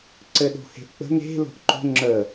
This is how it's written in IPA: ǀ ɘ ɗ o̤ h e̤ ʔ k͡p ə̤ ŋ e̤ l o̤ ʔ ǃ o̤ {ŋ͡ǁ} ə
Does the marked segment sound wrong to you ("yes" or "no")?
no